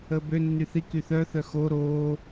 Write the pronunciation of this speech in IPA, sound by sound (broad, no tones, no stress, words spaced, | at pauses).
əːbø nːyθi kyθœ θœxo ɾoː